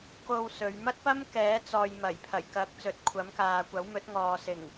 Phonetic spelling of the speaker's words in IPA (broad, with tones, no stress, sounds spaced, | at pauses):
k o˧ w s ɵ˨˧ ɥ m ɐ˥ t̚ p ɐ˥ m k ɛː˨˥ t͡s ɔː˨ j m ɐ˨˩ j pʰ ɐ˨˩ j k ɐ˨˥ k̚ t͡s ɵ˨˥ t̚ kʷʰ ɐ˨˥ m k aː˨ kʷ ɐ˨˥ w m ɵ˨˥ t̚ ŋ ɔː˨ s ɪ˨˩ ŋ